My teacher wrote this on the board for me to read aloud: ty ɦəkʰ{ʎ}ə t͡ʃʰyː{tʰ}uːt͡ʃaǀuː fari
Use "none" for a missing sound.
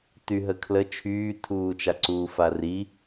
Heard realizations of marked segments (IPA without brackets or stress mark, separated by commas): l, tʰ